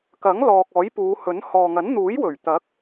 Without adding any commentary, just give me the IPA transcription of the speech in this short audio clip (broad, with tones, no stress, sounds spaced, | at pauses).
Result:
k ɐ˨˥ ŋ l ɔː˨ k̚ ɔː˨˥ j p uː˨˧ h ɵ˨˥ n h ɔː˨ ŋ ɐ˨˥ n n̪ uː˨˥ j w ɵ˨˩ ɥ t̪ ɐ˨˥ k̚